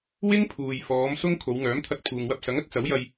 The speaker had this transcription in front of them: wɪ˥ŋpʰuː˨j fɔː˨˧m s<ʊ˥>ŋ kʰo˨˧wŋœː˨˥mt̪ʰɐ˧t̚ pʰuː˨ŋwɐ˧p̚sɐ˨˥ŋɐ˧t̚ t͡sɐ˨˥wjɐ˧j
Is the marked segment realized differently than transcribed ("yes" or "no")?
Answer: no